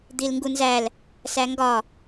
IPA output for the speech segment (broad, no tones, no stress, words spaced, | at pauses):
d̪ilŋɡunzæl | sæŋɡɒ